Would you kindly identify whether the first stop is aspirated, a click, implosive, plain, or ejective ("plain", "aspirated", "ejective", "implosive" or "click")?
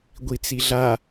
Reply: plain